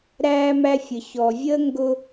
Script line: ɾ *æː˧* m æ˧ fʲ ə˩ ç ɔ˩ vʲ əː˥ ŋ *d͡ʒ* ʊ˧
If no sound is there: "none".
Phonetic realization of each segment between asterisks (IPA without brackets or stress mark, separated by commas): æː˧, ɡ